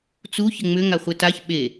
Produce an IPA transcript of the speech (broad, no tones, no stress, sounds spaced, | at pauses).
t͡s u ç ɘ ŋ͡m ʏ ŋ a χʷ ɘ t a ç ɓ e